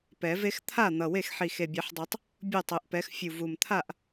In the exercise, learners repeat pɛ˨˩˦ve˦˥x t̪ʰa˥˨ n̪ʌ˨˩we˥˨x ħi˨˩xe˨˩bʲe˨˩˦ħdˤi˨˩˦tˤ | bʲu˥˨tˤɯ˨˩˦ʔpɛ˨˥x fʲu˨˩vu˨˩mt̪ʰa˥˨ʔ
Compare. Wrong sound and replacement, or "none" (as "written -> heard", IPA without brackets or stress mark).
none